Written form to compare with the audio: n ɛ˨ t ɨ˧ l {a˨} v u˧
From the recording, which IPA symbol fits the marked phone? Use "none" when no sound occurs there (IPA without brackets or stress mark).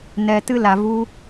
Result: a˨